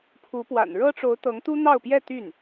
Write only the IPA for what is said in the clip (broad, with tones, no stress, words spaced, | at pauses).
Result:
pʰu˧˥pwa̰˨˩n ɻɤ˥ʈ͡ʂo˧˥ʊ̯t̪ɤ˧˥ŋ t̪u˥n̪ɑ˥˧ʊ̯pjɛ˥˧ t̪y˥˩n